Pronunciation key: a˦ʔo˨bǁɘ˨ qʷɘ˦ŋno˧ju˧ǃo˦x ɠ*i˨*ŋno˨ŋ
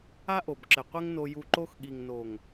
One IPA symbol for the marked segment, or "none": i˨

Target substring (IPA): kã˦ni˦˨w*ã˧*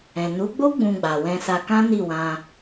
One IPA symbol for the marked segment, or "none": ã˧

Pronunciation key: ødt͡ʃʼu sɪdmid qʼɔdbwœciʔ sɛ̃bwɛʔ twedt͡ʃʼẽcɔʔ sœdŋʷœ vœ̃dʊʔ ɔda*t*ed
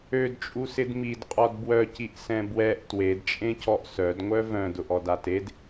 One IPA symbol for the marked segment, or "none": t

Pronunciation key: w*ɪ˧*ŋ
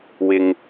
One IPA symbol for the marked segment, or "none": ɪ˧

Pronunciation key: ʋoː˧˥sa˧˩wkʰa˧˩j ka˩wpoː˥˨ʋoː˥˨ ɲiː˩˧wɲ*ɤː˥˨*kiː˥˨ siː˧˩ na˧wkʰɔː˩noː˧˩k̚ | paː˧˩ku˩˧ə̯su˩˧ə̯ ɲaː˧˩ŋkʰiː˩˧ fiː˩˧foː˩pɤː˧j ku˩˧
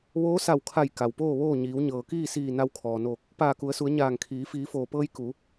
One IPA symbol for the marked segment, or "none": ɤː˩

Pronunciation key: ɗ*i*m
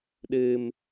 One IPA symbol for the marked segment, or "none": ɨ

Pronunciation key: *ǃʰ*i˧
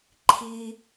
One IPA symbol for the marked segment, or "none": ǃʰ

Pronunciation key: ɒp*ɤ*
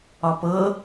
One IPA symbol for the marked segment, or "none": ɤ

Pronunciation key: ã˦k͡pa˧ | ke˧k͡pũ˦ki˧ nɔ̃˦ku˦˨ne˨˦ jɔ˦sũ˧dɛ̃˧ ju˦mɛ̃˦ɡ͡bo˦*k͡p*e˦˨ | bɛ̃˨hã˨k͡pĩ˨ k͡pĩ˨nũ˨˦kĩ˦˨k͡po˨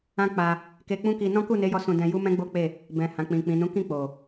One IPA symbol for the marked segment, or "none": k͡p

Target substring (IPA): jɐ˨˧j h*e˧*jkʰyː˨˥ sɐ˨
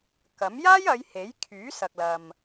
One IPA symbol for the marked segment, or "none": e˨˥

